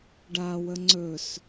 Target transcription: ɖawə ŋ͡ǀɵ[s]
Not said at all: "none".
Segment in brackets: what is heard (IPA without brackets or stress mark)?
s